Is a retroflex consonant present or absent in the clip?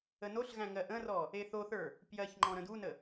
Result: absent